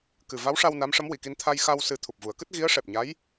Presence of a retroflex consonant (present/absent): present